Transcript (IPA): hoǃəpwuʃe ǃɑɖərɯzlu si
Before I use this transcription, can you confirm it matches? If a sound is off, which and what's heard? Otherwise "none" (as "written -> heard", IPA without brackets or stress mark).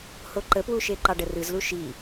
s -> ʃ